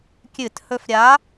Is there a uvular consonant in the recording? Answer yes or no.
no